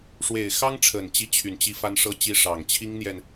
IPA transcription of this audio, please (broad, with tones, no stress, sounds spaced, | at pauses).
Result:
ʂ w e˨˩ ɪ̯ x ɑ˥ ŋ ʈ͡ʂʰ ə˨˩ n t͡ɕ i˧˥ t͡ɕʰ y˨˩ n t͡ɕ i˧˥ f a˥ n ʂ ɤ˥ t͡ɕ i˥ ʂ ɑ˨˩ ŋ t͡ɕʰ i˥ ŋ n̪ j ɛ˨ n